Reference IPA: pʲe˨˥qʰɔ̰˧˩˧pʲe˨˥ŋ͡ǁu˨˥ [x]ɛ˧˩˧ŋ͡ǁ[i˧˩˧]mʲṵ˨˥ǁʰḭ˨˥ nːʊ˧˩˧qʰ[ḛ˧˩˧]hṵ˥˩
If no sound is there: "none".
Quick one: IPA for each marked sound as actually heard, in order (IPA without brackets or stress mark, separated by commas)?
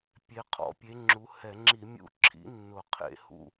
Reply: h, i˧˩˧, ḛ˧˩˧